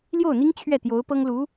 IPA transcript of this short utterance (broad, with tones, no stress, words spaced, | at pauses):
ljo˥˩ʊ̯n̪i˥ŋ t͡ɕʰɥɛ˥˩t̪jo˧˥ʊ̯ pɤ˥ŋlu˧˥